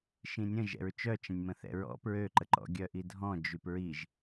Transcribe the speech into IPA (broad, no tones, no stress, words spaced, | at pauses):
ʃĩnʲə̃ ʒɛ̰ɹt͡ʃœt͡ʃə̃nʲmə̃ θɛ̰ɹɔ̰ pɹøǃəǃɔ̰ ɡʲœʔidʱɔ̃ d͡ʒypɹiʒ